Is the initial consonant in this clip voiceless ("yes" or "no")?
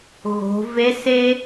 no